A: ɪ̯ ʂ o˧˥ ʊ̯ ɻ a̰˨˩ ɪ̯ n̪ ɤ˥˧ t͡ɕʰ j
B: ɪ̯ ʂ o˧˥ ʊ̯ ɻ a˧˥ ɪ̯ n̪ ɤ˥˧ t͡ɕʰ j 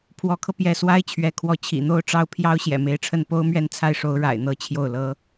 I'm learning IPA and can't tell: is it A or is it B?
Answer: A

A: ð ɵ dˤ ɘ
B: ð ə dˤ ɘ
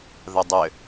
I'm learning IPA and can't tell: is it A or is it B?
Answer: B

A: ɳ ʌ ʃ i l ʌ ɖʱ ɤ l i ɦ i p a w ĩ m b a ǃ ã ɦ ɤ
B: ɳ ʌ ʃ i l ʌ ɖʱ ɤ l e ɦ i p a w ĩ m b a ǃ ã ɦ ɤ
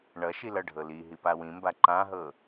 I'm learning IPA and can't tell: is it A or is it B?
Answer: A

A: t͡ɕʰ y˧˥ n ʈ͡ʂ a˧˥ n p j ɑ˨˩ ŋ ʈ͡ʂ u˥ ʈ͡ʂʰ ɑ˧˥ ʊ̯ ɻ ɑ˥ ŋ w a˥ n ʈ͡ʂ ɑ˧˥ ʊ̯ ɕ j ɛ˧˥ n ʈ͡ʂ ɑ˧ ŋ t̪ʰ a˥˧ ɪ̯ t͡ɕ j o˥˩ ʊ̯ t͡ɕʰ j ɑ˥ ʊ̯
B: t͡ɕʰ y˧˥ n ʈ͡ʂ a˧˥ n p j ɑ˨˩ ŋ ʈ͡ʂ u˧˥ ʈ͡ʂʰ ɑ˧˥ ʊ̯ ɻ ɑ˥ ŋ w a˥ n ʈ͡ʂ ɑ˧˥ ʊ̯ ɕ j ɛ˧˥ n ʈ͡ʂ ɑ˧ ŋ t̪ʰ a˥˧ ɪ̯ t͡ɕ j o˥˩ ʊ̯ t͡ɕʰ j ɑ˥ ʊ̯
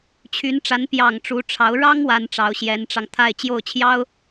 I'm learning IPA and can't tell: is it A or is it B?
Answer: B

